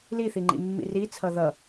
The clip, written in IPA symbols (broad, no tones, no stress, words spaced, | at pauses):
liθiŋ͡ǃḭ mːḭrit͡sʰʌ ðʌ